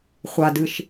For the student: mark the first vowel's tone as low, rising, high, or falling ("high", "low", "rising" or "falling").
low